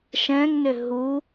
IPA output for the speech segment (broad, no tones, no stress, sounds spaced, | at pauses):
ʃ ɛ̃ ŋ n ʏ ɦ u